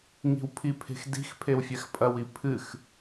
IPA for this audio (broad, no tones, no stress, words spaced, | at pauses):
ŋi̤wpʰipʰe̤x di̤x pʰewfʲɛxpʼɐwi pʰɨx